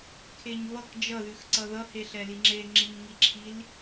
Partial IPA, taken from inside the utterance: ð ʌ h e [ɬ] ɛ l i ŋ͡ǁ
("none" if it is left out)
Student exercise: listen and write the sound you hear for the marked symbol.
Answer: ɬ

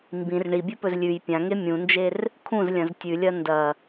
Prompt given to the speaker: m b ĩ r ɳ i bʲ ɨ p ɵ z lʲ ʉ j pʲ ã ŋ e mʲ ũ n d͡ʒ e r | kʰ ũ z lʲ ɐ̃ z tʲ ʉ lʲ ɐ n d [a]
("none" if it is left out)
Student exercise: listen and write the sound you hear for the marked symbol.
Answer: ɐ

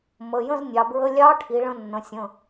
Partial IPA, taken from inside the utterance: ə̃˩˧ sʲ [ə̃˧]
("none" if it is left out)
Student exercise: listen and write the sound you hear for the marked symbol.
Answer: ə̃˩˧˩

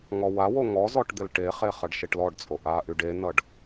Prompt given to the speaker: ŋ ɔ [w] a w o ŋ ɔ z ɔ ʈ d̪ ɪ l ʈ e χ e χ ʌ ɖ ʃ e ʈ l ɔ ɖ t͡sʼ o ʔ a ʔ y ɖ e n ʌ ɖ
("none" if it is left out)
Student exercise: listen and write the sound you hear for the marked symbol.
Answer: w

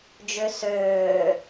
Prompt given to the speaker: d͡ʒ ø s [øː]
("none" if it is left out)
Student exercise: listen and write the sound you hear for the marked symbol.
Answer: øː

